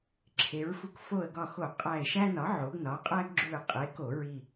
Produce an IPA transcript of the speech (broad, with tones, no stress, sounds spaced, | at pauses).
ǁʰ e˩˧ ɹ f u˧˩ k f o˧˩ ə̯ ɡ ɒ˧˩ x o˧˩˧ qʼ æ˧˩ ɪ̯ ʃ æ˦ n ɒ˩˥ ʕ o˩˧ ɡ n ɒ˩˥ qʼ æ˦ ɡ ɡ͡ǁ u˧˩ ɪ̯ qʼ e˩˥ k o˧˩˧ ɹ i˧˩